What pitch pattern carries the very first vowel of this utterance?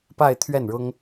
falling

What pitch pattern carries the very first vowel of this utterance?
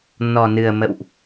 low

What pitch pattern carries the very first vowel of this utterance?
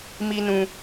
high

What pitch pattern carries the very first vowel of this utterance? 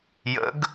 rising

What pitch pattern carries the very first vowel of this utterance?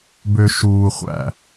low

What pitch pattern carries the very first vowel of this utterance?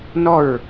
falling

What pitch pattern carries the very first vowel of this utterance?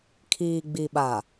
low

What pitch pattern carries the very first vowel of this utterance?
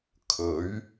rising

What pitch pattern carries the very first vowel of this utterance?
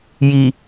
low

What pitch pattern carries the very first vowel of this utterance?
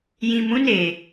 low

